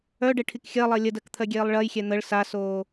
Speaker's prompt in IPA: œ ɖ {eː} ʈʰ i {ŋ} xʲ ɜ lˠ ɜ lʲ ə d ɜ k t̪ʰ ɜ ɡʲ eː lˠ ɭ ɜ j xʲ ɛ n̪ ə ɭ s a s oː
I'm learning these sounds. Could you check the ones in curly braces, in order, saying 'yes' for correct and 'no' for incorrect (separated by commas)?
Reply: no, no